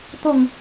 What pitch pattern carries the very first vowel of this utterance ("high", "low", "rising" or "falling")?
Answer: falling